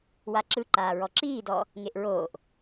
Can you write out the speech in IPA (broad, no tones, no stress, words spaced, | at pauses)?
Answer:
waǁɯǃaː ɹɔǁiːdɔ | ŋeʔɹoːʔ